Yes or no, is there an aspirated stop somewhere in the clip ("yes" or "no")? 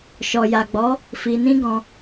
no